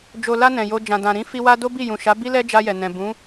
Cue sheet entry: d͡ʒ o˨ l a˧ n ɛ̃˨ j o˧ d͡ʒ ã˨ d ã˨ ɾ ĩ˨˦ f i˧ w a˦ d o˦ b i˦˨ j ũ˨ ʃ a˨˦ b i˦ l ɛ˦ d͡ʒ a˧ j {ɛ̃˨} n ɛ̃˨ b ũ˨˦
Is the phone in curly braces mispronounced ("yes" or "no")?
yes